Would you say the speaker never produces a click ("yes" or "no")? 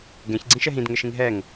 no